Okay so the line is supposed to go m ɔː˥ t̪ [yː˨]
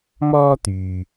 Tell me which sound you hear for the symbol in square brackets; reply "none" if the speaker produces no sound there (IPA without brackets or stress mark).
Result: yː˨